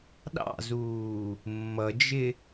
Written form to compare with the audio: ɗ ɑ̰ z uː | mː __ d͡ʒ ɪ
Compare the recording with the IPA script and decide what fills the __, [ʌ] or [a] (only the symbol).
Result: ʌ